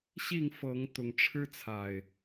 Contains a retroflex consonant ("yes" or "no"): yes